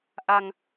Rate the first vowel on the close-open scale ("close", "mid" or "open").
open